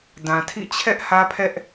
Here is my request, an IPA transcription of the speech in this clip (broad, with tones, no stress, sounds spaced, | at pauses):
d ã˨ tʰ ḭ˦˨ t͡ɕʰ ɛ˦ ʔ h ä˦ pʰ ɛ˦ ʔ